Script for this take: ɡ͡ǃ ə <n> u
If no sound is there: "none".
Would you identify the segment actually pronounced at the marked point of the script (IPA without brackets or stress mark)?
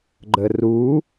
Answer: r